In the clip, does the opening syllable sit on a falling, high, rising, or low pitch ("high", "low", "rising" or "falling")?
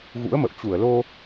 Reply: rising